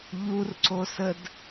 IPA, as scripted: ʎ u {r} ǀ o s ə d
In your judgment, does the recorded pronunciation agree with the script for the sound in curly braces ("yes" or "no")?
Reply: yes